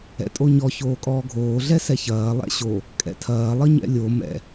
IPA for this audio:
ɛ̰ tʼ o ɲ ɔ ç oː kʼ ɔː ɡʱ oː ɮ ɛ s ɛ ç ɐː lˠ ɛ̰ ɕ o | kʼ ɛ̰ tʰ ɐː lˠ ʌ ɲ ɛ̰ lʲ o m ɛ̰

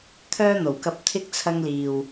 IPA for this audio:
t̪ʰ œː˥ n̪ o˨˩ w k ɐ˧ p̚ t̪ʰ ɪ˥ k̚ t͡sʰ ɐ˧ ŋ l iː˨ w

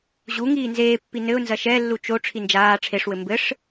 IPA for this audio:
ʑ u ŋ iː n z eː pː i n ɘ ʊ̯ n z ɐ ʃ ɛ lː u t͡ʃ o ʈ͡ʂʰ i n d͡ʒ aː ʈ͡ʂʰ e ʂ w ɘ m b ɘ ʂ

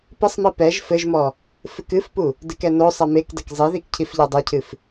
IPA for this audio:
p ɘ sˤ m i p ɛ ʒ f ɘ ʒ m ɔ | f ɨ k ɨ f p u | d ɨ k ɛ n o sˤ ɛ m e k d ɐ k zˤ i ð i k cʰ i f ʎ a dˤ a cʰ ɨ f

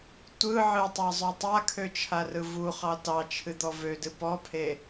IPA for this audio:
tʷ ɯ ʕ ɨ tˤ ɑ zˤ ø tˤ a kʰ ø t͡ʃʰ a r ɯ v u χ ɑ t ɑ t͡ʃʰ ɨ d̪ ɔ v ø d ɨ p ɔ pʰ e

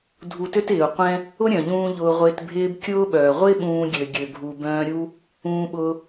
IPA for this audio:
dʱ u˧ t ø˥ t ɪː˩ u̯ qʷ ɛ̃˥ | ʊ˥ ɾʲ œ̃˩ ʎ ũː˧ ʎ ʊː˧ ʁʷ ɪː˧ t bʱ ɪː˥ b kʲ ʊː˥ ɓ œː˩ ʁʷ ɪ˥ ɓ ũː˧ ɡʲ ø˩ ɡʲ ø˩ ɡʱ u˩ b œ̃ː˧ ɾʲ u˥ | ũː˧ ɓ ʊː˧

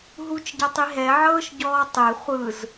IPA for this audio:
ɦ u t͡ʃ ɟ a tˤ i ɦ ɛ ʕ ɤː ʃ ɟ ɔː tˤ e χʷ ɯ z

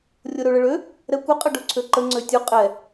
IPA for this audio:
rʲ o ɾ ø ɭ ə ɭ ø | ɾ ɛ kʷ ə qʼ ɘ ɖ o ǀʰ ø ǃ ə ŋ͡ǀ ø tʲ u qʼ ɛ

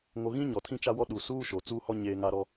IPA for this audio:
ŋ o˨ ɣ ĩ˦ ɲ ɔ˨ tʰ ĩ˦ t͡ʃ a˦ w ɔ˦ ɗ u˨ s uː˦ ʃ o˨ t͡s uː˦ h ɔ˦ ɲ eː˦ ŋ a˦ ɾ ɔ˦

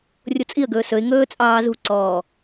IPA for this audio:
rʲ o t͡sʼ i ə̯ ɡ ɵː s ɵ ɪ̯ ŋ ɵː t͡sʼ ɑː z ṳ ǀ ɔː

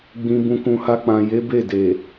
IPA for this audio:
ɡ͡b ĩ˨ b ũ˨ k ũ˨ h a˧ k͡p ã˨ j e˨˦ b e˦˨ d e˨

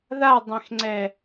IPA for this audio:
ð a dˤ ẽ x ŋ͡ǀ ɛ

